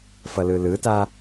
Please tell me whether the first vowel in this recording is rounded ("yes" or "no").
no